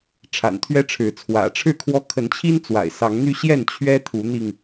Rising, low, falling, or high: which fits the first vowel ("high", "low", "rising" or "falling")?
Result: low